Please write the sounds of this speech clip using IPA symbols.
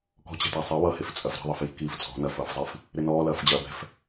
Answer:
k ɔ̤ t͡ɕ ɛ̤ t a sˤ ɛ w ʌ h e f t͡sʼ ɐ f ɾ ɛ̤ ðˤ i f j i̤ k iː f t͡sʼ ɔ̤ n ɐ f ʌː f zˤ i f | ɾ ɪ n ɔː l ɐː f d͡ʑ ɐː b ɛ̤ f

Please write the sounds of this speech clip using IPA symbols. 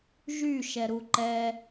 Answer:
ʒ y ʃ ɛ ɾ u ǃ ɛ

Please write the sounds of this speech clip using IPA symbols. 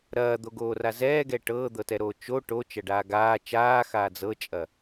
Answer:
ɾ ɐː d̪ o ɡ oː r a z ɛː ɡ ɛ ʈ ɤː d̪ ɤ t ɛ ɾ oː t͡ʃ o ʈ o t͡ʃ ɐ ɖ aː ɡ aː t͡ʃ aː x aː d͡z ɤ t͡ʃʼ ɐ

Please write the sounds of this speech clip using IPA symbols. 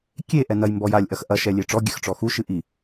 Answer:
kʲ e ʔ ɛ n ɐ j m b ɔ j a lʲ ʔ ɐ x ʔ ɐ ʃ ɛ lʲ e ʈ͡ʂ ɔ ɡʲ ɘ x ʈ͡ʂ ɔ x u ʃ ɨ ʔ i

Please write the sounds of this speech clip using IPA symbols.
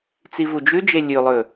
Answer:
t͡s i v u d͡ʒ ʉ d͡ʒ e lʲ ʉ lˠ ɵ

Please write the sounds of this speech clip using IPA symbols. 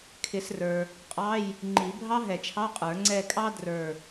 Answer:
kʰ ɪ˨˩˦ s r ə˞˨ | qʼ ɑ˧˥˧ j | ŋ͡ǃ i˨˩˦ bʱ ɑ˥ ɦ ɛ˨˩˦ t͡ʃʰ ɑ˧˥˧ qʼ ə˞˨˩˦ ŋ͡ǀ ɛ˦˨ kʼ ɑ˥ d r ə˞˦˨

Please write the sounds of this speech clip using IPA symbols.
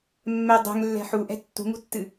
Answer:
mː ɛ dˤ ɛ̤ ŋ lː ɛ̤ ħ u ʔ ɛ̤ tː ṳ ŋ ṳ tː ɨ

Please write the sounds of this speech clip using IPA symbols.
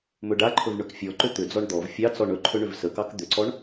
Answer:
m ɵ ɖ a ǃʰ ɵ v ɳ ɵ k fʲ ɔ ǃ ʏ t̪ ʏ d͡z ɔ ɳ d̪ ɔ v fʲ ɑ t͡s ɔ ɳ ɵ ǃʰ ɵ ɳ ʏ v s ə k ɑ k d̪ ʏ ǀ ɔ ɳ

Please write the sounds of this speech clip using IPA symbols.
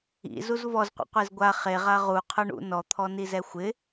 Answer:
ḭ z u z v ɔ z qʷ ḭ qʷ e z ɡʷ a χ e ʁ a ʁ u qʰ ʊ ɳ ṵ n ɔ t̪ʰ ɔ n i z ɛ xʷ ɪ

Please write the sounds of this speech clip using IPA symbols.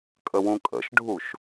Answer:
kʼ ə w ũ kʼ ə̰ ʃ ɖʱ u ʃ

